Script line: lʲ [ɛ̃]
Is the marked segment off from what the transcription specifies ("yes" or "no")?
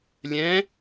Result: no